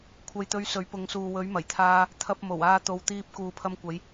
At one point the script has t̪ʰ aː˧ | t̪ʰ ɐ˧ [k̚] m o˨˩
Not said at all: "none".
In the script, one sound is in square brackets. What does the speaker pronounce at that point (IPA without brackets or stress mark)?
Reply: p̚